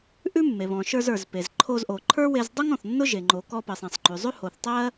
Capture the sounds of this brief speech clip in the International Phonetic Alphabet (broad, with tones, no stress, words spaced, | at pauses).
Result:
ʔʉ˥mːe˩βɔ̃˩ ʃə˞˧z ə˞˩zpe˩z ǃʰo˧zʔo˩ǃʰə˞˥we˧z dˤʊ˥ŋ ɔ̃˩θnːʊ˥ ʒe˩ŋ͡ǃo˩kɔ˧pɜ˩sˤ ẽ˩sˤŋ͡ǃʉ˩zˤʉ˥ ho˩θtˤɜ˥